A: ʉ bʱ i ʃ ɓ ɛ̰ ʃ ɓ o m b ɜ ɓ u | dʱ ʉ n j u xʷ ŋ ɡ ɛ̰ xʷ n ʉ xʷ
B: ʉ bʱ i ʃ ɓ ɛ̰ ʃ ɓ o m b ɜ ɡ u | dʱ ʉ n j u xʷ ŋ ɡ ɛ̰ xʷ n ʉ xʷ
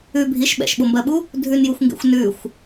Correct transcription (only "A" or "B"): A